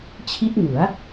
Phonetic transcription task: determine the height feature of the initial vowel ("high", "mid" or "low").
high